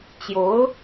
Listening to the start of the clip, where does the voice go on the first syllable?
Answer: rising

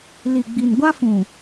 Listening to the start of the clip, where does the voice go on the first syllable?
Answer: low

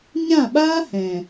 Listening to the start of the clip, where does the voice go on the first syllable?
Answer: falling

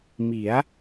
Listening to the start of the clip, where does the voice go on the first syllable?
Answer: rising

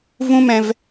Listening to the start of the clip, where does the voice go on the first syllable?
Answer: high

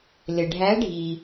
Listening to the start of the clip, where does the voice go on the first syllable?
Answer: low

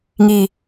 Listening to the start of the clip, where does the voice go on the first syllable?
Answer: low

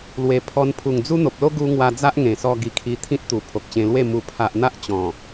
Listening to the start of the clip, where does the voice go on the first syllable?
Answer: low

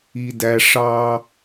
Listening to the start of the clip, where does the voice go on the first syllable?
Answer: low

